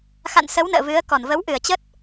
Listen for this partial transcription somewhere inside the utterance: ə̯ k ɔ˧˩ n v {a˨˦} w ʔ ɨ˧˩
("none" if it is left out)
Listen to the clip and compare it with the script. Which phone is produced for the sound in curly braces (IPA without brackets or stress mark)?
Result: ə˨˦